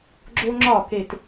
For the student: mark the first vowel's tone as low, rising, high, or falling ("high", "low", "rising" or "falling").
high